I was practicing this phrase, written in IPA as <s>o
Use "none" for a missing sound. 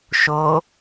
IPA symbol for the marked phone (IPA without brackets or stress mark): ʃ